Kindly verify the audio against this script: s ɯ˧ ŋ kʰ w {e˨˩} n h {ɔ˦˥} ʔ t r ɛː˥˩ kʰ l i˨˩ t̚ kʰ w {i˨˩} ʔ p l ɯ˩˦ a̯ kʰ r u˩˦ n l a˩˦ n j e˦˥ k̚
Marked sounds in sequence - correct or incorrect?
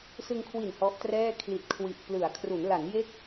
incorrect: i˨˩, correct, correct

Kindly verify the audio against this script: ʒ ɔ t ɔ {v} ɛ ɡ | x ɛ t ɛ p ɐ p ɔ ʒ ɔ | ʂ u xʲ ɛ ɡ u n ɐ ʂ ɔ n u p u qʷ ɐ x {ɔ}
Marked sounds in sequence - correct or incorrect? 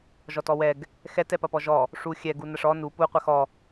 incorrect: w, correct

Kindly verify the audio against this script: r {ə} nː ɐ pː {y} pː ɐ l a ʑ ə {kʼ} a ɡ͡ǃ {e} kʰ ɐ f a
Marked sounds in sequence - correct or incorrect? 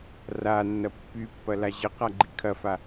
incorrect: a, correct, incorrect: q, incorrect: i

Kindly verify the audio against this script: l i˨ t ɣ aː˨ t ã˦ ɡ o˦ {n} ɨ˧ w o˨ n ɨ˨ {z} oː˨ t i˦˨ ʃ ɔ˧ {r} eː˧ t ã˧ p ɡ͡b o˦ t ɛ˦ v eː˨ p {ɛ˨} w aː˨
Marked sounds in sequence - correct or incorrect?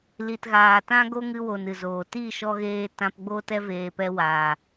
incorrect: ŋ, correct, incorrect: ɣ, incorrect: ɛ˧

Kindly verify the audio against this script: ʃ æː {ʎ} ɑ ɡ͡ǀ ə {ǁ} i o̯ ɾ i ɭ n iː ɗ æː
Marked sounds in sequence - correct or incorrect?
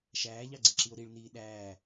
correct, correct

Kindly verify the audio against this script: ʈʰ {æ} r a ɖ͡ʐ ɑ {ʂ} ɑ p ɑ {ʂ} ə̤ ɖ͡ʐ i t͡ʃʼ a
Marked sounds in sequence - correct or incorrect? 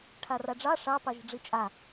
incorrect: a, correct, incorrect: ʒ

